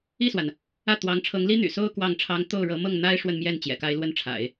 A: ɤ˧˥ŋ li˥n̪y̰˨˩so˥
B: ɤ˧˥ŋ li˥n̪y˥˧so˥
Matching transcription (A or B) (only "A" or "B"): A